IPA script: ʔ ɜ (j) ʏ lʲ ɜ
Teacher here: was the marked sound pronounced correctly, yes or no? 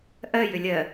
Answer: yes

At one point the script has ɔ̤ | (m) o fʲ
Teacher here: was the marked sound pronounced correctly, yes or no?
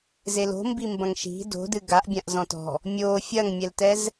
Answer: no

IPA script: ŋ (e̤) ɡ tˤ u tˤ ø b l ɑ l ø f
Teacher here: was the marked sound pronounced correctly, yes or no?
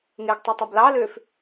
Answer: no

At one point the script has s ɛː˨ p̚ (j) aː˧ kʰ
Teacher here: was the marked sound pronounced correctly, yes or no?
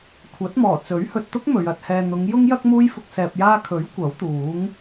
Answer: yes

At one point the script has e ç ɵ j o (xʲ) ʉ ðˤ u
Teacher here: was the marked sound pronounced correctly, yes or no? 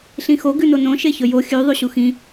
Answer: yes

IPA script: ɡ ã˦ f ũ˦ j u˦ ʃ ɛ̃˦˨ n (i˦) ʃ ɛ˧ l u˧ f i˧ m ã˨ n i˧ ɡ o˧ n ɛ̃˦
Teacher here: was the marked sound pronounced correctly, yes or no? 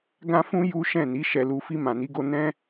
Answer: no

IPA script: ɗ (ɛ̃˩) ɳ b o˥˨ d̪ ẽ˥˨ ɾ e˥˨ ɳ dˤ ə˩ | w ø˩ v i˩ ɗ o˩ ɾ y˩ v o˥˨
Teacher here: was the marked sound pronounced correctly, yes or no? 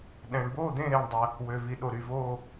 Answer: yes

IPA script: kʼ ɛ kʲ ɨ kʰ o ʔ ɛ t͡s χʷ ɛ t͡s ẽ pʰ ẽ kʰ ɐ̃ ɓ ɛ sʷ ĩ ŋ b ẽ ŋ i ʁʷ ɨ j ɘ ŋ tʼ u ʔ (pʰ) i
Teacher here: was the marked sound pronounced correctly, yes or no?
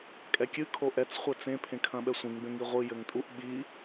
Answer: no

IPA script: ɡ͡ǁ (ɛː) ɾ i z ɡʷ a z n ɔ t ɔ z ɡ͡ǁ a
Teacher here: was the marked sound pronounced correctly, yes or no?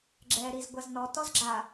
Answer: yes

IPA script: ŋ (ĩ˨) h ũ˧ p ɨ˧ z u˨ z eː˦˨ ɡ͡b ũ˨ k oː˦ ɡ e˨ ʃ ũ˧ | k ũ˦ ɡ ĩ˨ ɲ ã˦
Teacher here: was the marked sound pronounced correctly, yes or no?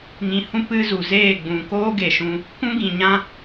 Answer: yes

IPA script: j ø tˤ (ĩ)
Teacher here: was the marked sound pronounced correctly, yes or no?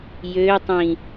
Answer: yes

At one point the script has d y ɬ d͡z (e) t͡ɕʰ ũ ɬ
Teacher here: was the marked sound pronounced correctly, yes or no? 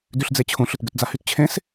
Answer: yes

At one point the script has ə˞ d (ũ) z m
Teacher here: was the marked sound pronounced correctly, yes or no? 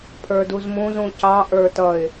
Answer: no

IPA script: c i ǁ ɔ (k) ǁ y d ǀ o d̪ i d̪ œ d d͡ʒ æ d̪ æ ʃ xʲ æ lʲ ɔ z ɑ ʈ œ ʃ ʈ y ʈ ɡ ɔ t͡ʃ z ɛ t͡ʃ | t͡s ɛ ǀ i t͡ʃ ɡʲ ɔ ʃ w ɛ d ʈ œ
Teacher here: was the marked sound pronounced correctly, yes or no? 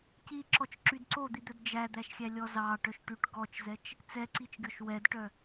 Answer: no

